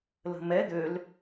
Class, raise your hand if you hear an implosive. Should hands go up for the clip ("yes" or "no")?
no